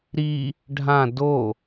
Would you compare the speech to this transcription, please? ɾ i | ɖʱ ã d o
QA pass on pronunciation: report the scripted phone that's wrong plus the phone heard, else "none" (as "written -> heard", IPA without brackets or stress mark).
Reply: none